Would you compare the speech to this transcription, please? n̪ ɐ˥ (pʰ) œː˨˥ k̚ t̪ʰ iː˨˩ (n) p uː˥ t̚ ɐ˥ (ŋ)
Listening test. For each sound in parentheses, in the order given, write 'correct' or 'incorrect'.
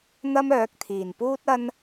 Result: incorrect: m, correct, incorrect: n

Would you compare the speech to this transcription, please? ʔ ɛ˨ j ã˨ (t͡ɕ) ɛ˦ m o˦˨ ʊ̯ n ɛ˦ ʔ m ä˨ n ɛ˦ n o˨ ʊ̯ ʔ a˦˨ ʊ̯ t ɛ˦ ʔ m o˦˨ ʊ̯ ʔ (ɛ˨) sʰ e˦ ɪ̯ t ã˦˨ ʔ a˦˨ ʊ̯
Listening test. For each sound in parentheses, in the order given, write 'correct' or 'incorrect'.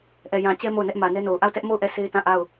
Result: correct, incorrect: ɛ˦˨

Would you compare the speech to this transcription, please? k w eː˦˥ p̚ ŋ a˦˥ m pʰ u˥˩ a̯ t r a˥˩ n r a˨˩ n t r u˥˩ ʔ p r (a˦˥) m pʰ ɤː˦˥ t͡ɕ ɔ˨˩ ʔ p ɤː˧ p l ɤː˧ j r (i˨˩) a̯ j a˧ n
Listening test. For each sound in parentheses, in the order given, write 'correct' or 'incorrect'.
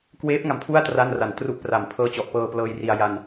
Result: incorrect: a˨˩, incorrect: i˧

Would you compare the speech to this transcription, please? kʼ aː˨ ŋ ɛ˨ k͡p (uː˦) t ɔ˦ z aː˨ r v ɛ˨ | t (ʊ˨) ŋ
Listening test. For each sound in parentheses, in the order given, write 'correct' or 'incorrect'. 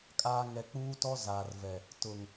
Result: correct, correct

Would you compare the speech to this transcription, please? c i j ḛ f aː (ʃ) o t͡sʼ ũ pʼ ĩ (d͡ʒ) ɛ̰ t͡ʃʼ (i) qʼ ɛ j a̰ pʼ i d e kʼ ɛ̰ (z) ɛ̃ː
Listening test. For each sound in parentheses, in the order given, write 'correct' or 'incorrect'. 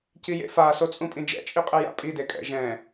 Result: incorrect: s, correct, correct, incorrect: ʒ

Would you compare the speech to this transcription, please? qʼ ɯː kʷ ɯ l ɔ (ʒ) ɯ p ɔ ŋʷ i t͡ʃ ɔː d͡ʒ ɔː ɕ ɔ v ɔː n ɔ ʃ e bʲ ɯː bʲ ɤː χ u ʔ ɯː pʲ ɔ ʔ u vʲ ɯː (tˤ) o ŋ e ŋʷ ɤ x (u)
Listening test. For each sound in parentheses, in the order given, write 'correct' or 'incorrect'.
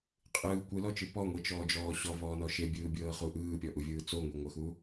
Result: incorrect: t͡ʃ, incorrect: t͡s, correct

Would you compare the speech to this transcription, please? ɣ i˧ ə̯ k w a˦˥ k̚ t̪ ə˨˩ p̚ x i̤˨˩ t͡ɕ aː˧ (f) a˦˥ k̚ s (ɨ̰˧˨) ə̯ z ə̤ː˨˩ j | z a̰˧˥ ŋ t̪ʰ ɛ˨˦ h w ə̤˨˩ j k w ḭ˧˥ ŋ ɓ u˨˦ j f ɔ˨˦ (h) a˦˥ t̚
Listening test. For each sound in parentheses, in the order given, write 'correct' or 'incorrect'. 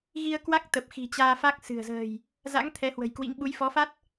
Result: correct, incorrect: ɨ̤˨˩, incorrect: f

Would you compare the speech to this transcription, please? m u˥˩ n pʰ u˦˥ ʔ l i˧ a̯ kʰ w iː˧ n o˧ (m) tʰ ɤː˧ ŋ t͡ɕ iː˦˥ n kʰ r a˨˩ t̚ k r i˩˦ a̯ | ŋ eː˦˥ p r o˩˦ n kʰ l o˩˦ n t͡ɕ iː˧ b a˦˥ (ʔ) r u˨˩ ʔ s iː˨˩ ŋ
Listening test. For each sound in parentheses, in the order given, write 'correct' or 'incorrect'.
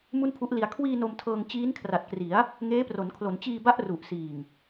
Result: correct, correct

